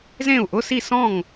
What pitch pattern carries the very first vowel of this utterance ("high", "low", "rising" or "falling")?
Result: falling